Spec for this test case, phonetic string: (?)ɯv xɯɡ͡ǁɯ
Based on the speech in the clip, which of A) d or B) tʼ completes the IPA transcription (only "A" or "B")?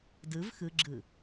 A